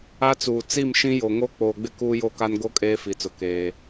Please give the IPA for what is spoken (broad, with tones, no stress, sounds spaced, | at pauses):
a˦ t͡s uː˨ t͡s i˦˨ m ʃ ĩ˦ j o˨ ŋ o˦ k͡p oː˨ ɡ͡b ɪ˦ k uː˦ j o˦ k a˦ n ɡ o˦ kʼ eː˦ f i˨ t͡s ʊ˨ k eː˦